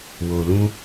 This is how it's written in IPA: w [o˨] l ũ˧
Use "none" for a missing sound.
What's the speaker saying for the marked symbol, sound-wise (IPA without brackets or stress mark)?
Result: o˨